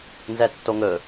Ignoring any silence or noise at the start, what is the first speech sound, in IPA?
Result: n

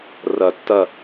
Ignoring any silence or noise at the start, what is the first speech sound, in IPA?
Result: r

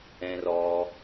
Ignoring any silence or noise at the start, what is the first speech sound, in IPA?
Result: ɛ̃ː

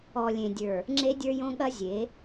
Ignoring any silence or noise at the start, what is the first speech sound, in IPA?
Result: ɔ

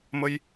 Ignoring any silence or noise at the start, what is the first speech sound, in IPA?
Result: m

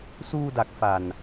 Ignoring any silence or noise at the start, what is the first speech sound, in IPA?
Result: s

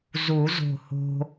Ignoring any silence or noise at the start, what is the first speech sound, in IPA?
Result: z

